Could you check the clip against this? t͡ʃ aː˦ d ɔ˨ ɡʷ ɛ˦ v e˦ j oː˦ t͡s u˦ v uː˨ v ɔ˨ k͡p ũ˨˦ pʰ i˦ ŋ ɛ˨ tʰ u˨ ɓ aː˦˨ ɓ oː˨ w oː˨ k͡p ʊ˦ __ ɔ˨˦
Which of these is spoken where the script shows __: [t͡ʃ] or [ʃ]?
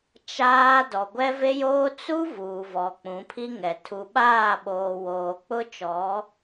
t͡ʃ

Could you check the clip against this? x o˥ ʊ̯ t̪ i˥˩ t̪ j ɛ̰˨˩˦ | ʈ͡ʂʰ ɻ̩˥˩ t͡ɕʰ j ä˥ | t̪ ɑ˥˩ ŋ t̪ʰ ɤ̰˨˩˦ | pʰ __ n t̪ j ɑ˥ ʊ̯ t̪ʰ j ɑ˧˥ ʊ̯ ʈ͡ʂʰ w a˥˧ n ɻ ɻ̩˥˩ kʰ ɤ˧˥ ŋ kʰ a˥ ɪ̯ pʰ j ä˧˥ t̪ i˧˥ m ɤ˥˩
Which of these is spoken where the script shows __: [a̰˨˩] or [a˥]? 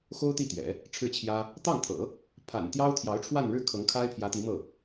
a̰˨˩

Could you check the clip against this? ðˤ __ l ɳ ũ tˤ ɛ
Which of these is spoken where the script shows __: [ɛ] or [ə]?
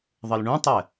ə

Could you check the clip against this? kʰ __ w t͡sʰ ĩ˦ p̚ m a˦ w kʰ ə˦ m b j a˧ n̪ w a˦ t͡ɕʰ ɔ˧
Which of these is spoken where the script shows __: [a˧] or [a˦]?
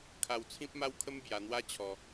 a˧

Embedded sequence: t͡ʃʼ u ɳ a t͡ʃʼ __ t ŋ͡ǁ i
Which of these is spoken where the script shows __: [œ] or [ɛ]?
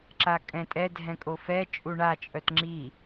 œ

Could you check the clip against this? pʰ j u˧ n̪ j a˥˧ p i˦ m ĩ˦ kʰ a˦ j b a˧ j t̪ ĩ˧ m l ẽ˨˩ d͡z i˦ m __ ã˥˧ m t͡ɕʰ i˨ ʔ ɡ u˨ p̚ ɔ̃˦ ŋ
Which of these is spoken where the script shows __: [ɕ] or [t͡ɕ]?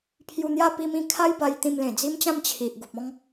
t͡ɕ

